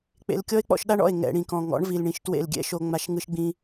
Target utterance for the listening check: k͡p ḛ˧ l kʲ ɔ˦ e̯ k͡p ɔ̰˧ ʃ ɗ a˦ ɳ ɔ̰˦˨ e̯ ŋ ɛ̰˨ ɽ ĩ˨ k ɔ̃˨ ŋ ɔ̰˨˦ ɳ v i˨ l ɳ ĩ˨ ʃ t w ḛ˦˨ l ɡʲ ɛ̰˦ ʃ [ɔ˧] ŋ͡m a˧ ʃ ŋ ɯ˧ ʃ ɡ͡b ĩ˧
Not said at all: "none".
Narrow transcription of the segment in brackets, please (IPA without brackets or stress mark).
o˧